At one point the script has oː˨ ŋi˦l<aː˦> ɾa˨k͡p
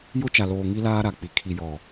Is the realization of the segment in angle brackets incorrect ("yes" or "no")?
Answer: no